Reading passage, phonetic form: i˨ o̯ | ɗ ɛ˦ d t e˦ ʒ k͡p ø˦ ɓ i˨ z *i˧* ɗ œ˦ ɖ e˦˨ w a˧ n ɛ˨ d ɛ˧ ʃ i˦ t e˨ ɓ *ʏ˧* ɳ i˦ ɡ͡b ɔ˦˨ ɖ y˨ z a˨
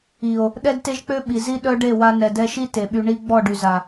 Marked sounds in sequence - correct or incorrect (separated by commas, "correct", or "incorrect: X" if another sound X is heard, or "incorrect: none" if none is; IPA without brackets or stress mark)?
incorrect: i˦, incorrect: y˧